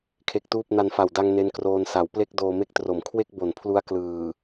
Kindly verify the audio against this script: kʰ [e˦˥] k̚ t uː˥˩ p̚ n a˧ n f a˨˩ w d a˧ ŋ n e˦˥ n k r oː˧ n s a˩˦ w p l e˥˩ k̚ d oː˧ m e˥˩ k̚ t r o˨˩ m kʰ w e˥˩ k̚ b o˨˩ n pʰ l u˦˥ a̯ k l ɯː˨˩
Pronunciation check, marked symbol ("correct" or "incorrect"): correct